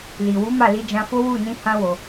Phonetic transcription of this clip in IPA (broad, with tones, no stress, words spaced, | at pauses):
li˨wu˨˦ ma˦˨li˧d͡ʒã˧fo˦ wu˦˨nĩ˧ hã˦wo˧